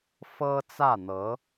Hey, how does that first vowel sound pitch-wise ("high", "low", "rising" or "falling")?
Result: high